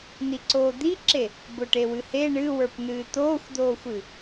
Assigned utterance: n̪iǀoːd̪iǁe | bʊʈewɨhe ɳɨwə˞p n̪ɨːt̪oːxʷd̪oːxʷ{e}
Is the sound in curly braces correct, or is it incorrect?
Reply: incorrect